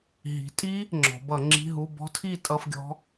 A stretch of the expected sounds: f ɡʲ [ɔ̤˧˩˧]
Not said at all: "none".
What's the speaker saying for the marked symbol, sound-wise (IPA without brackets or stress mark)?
ɔ̤˦˥